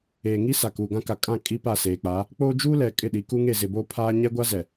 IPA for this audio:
eː˨ŋi˦ sa˨kuː˨ɡã˦ka˨ kʼã˦˨ kʼi˦pa˦˨seː˨k͡pa˨˦ | k͡poː˦ d͡ʒuː˦lɛ˨ kʼɪ˦˨ɗi˨ ku˦ŋe˦˨zɪ˨boː˦ pʰaː˦ ɲɛ˦ɡʷa˦zɛ˨

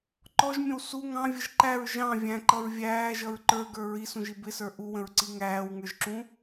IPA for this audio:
ǃɔʒmʲə̃w su ŋɑ̃vʲəʒ ǃæɹ ʒɑ̃ vʲæ̃ǃʌɹ vʲæːʒʌɹ ǃə˞ɡə˞ ɹisũʒi bɪsə˞ ʔuwə̃ɹǀi ŋæːwŋə˞ʒǁũ

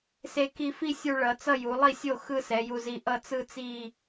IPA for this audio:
se˧ ki˧fi˥˧ sʲu˧ ɭʌ˩˧t͡sʌ˥˧ ju˩˧lˠi˥˩sʲo˥˩ xɯ˥˧sɛ˩˧ju˧zi˧ ʔʌ˥˩t͡sɯ˥˧t͡si˥˧

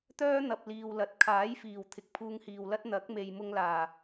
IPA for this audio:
t̪œː˥ n̪ɐ˨p̚liː˨wlɐ˨˥t̚ kʰaː˨˥jfiː˨˩w t̪ʰɪ˨k̚pʰuː˧ŋhiː˨wlɐ˥t̚ n̪ɐ˨˥k̚me˨j mʊ˧ŋlaː˨˩

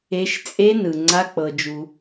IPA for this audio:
e˧ʃt͡sʼe˦nɯ˨ ŋ͡ǀa˦k͡pɤ˧d͡ʒu˧

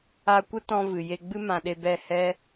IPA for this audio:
a˧kʷə˦tɔ̃˧ vɨ˨ je˧ɡ͡bɨ˦ mã˧ɗe˧bɛ˦˨ hɛ˦

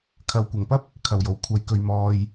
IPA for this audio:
kʰɐ˨wkʷɐ˨˩ŋpɐ˥p̚ | kʰɐ˨˩wjo˨˩wkʷʰɐ˨˧jkɵ˨ɥ mɔː˨j

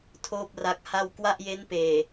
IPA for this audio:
tʰoː˥˩p̚ ra˦˥k̚ha˥˩w kwa˥˩ʔje˦˥npeː˨˩

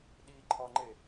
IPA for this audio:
ɗiǃʰɒŋ͡ǃe

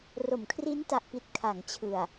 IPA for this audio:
ro˩˦mkʰri˦˥nta˨˩ʔpi˨˩t̚ kʰa˩˦ŋt͡ɕʰɯ˨˩a̯

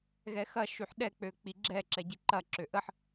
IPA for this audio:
ɣɛxɐ ʃyħɗɛk͡pø k͡piɡ͡ǁɛ ǁɛɟiǃɐ ǁøʔəħ

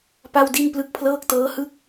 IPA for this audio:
pa˥˩wdi˥˩n plɯ˦˥k̚pʰlɤː˥˩k̚tɤː˦˥hɯ˥˩k̚

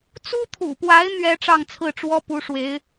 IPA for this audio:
t͡su˥t̪ʰṵ˨˩pwa˧˥ɪ̯ n̪ɥɛ˥ ʈ͡ʂɑ˥˧ŋt͡sʰɹ̩˥˩ʈ͡ʂwɔ˥pu˧˥ ʂwe˧˥ɪ̯

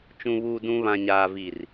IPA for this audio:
t͡ʃũ˨βuː˨dũ˨ βã˨ɲaː˨vi˨r

